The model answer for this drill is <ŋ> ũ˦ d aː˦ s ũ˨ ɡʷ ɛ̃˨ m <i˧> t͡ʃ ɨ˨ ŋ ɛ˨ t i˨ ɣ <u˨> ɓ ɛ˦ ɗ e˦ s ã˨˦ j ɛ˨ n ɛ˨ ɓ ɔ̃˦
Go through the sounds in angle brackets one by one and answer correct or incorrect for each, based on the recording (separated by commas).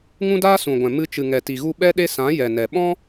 correct, incorrect, incorrect